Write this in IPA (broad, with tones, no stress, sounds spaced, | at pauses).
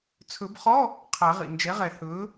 t͡sʰ ɵ˨˩˦ b χ ɔ˧˥˧ | qʰ a˨˩˦ ʁ ḭ˩ n d͡ʒ ɛ˩˥ ʁ ɛ˨˩˦ h ɵː˩˥